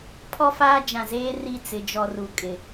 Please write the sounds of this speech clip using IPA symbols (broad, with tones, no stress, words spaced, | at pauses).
pʰɔ˦faː˦d͡ʒã˨zeː˦ ri˦˨ t͡sɪ˨d͡ʒɔ˨ ru˨ kʼɪ˨